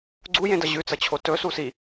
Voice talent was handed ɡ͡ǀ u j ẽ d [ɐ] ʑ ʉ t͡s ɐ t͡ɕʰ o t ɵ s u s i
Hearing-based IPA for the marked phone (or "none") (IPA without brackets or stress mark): ɐ